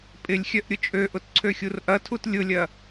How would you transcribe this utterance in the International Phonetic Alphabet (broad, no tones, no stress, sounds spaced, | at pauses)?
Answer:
pʼ ɪ lʲ xʲ œ ʔ ɾʲ ʊ t͡ʃʼ ø ʔ ʊ t ǀʰ ø xʲ u r ʔ ɐ tʰ u t lʲ ʊ lʲ ɐ